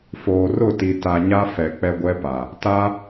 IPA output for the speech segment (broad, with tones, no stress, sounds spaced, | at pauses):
f oː˨ r ʊ˦˨ t i˨ t a˨ ɲ a˦ f ɛ˨ k͡p ɛ˦ ɡʷ ɛ˦ p a˨ | t a˦